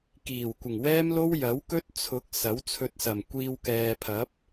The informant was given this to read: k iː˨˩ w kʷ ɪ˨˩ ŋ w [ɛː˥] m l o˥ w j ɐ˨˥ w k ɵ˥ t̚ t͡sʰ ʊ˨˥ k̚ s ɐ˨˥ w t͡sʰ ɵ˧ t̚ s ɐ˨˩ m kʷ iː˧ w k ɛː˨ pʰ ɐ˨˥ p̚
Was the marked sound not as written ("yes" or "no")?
no